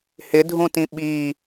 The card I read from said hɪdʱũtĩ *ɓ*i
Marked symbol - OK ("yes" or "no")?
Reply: yes